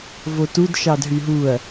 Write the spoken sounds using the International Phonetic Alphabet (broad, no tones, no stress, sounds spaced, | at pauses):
v o t u d ʃ ɑ d ɦ y ɦ u ɐ̯